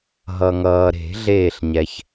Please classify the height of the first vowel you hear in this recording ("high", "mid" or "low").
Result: mid